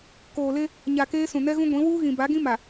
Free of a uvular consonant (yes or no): yes